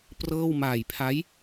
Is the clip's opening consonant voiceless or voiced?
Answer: voiceless